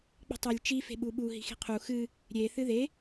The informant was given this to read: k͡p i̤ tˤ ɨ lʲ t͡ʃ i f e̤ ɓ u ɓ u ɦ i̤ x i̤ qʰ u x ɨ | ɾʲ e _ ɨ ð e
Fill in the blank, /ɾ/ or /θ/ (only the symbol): θ